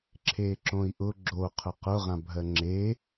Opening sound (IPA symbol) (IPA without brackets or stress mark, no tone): ǁʰ